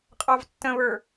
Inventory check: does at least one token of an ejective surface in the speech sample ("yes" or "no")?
yes